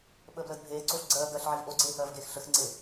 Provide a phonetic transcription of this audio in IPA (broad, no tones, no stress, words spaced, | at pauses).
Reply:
ɓəːbləːdbʱeː ǀoːɬɡ͡ǀɜː ɡɜɬʕiv ʔoɡ͡ǀeːhɜːvɡeːx ɬəxŋ͡ǀe